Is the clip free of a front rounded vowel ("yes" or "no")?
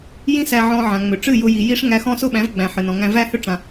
no